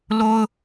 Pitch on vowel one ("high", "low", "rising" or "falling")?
high